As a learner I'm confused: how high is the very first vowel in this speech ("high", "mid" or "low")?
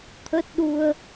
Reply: mid